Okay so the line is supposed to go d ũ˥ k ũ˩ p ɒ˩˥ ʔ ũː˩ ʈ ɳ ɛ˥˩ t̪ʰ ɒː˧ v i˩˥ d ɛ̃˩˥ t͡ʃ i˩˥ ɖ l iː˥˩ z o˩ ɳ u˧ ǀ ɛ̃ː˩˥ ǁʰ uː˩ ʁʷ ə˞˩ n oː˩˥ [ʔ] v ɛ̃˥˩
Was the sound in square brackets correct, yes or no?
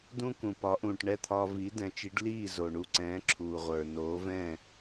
no